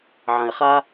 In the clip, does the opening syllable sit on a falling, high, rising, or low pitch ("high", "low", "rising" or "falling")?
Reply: low